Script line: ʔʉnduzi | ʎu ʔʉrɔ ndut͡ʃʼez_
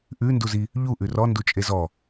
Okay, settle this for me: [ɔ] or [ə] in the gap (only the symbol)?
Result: ɔ